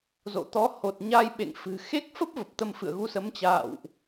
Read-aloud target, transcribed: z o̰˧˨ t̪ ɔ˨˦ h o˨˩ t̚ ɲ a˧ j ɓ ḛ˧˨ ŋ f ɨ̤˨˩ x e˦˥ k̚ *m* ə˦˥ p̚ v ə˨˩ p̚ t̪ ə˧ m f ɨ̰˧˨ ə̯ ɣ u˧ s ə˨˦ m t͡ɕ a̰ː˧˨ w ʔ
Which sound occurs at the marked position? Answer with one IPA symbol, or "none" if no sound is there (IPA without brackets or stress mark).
f